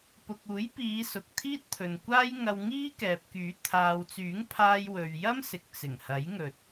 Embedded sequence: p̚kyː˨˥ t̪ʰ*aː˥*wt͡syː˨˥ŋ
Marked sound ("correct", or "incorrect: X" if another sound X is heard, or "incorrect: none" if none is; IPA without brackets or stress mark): incorrect: aː˨